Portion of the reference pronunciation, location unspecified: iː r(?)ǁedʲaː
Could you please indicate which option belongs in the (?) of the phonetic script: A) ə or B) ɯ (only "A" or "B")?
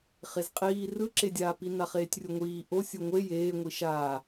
B